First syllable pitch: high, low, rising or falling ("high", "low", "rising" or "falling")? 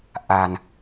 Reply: low